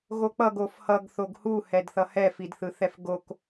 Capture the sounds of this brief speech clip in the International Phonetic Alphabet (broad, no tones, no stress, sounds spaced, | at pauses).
ɣ o k͡p ʌ ɡ o f h ʌ ɡ θ o ɡ h u h ɛ d θ ʌ h ɛ f i d θ ɯ θ ɛ f ɡ o k